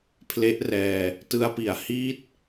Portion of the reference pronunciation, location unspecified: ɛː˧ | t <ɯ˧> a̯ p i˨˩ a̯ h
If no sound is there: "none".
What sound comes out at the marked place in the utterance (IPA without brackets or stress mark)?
ɯ˧